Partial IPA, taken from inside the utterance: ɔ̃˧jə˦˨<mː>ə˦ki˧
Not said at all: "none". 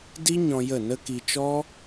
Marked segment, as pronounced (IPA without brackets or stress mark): n